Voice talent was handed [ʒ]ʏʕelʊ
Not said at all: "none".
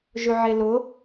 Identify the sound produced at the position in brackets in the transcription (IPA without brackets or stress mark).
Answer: ʒ